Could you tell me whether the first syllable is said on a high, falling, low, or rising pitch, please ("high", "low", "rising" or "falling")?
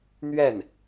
falling